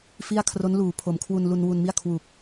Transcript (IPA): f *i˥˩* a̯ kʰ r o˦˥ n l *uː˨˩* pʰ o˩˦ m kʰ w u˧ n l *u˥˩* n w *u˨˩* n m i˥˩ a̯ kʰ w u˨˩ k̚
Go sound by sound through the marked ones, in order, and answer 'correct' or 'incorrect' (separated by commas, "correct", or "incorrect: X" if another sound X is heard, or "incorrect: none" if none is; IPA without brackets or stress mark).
correct, correct, incorrect: u˧, incorrect: u˧